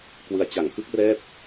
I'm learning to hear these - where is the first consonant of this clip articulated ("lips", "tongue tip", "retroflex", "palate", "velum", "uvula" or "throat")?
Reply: velum